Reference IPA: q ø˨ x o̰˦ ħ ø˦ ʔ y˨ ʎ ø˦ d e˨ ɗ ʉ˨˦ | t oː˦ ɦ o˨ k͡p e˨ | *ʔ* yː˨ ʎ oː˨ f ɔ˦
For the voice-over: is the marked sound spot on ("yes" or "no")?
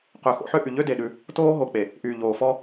yes